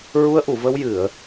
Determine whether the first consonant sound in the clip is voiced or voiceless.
voiced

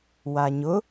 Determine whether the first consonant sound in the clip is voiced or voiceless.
voiced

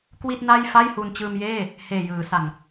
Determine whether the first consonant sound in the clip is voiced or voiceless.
voiceless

